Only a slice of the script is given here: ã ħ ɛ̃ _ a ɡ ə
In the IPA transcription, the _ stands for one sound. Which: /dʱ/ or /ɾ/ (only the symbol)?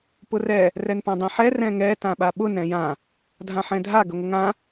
dʱ